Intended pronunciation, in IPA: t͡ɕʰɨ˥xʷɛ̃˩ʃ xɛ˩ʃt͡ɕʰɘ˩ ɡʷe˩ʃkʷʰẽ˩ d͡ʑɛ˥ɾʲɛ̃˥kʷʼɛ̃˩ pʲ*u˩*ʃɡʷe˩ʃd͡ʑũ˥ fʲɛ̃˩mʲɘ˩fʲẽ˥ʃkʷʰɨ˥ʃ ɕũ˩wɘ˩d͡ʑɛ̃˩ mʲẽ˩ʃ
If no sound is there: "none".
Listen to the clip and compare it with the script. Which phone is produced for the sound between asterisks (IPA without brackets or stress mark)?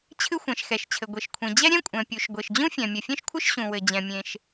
u˩